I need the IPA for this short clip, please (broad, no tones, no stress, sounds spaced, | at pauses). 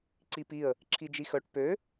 ǀ i p i ə̯ | ǁʰ i d͡ʒ i x œ ʈ p ø